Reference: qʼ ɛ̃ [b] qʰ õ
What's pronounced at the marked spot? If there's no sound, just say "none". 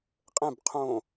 b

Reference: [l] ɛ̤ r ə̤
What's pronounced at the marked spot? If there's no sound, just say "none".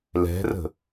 l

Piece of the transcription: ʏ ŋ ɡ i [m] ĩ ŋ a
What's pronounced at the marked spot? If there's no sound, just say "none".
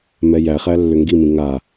m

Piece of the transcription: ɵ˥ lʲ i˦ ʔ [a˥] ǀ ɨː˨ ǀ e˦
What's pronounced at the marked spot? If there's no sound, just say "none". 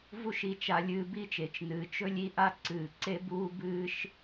a˥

